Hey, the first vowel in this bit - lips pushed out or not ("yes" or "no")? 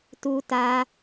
yes